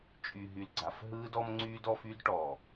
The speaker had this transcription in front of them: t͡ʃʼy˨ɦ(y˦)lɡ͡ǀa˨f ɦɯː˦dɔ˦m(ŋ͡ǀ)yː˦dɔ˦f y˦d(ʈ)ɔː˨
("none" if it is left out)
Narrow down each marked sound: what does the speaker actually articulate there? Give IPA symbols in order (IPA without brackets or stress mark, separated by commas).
y˨, ŋ͡ǀ, ʈ